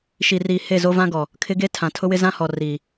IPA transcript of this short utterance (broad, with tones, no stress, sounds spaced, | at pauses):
ʃ i˨ r iː˨ h e˦˨ z o˦ v ã˦ ɡ ɔ˨ | kʰ ɪ˦ ɡ e˦ tʰ ã˨ tʰ ʊ˦ w ɪ˦ z ã˦ h ɔ˨ r iː˨